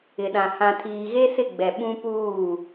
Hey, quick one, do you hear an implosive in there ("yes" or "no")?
yes